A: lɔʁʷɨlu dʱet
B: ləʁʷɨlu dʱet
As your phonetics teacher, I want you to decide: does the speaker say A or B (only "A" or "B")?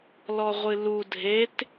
A